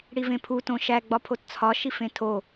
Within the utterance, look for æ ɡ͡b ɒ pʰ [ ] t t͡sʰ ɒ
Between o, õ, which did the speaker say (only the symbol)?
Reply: o